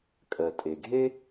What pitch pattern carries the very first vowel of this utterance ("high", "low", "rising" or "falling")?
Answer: low